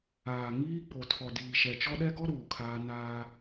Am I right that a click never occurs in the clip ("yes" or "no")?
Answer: yes